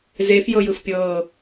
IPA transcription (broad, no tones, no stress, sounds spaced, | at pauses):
z e f j ɤ j ɯ f pʲ ɤː